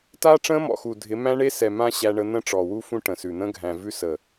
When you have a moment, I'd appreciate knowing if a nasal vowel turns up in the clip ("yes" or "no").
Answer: yes